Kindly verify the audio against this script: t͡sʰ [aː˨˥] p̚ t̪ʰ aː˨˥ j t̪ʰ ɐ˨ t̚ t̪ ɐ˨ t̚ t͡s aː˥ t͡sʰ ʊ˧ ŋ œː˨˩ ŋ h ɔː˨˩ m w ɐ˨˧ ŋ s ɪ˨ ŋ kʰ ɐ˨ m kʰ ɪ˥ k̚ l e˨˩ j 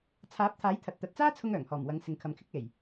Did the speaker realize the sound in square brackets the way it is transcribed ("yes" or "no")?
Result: yes